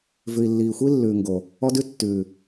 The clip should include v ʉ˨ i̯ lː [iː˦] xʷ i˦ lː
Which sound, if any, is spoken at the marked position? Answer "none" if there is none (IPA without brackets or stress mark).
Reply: iː˨